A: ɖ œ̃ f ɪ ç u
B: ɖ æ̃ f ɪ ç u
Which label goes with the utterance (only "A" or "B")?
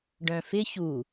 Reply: A